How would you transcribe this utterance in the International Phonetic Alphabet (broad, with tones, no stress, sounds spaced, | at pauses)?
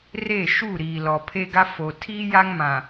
r e˦˨ ʃ u˦˨ ɾ iː˨ l ɔ˨ pʰ e˦ ɡ a˦ f o˨ tʰ iː˦ j a˦ ŋ m ã˨